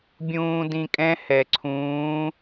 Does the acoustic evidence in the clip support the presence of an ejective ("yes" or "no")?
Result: yes